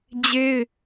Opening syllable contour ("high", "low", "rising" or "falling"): high